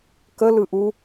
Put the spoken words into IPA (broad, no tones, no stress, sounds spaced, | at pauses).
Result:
k ə l ɯ ʔ u